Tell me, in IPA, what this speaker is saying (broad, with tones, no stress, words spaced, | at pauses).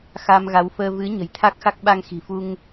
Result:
xa˧mɣa˨˦wfəː˧ vɨ˨˦ ɲə̤˨˩jt̪ʰa˦˥k̚xa˦˥k̚ ɓa˧ŋxi̤˨˩fu˧ŋ